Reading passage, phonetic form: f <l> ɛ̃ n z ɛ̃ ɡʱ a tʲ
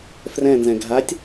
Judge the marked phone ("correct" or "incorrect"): incorrect